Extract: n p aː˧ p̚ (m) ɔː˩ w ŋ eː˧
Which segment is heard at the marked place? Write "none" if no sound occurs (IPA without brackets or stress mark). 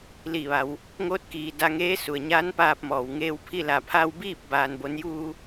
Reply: m